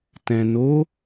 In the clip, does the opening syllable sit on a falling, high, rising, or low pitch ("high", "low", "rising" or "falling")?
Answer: low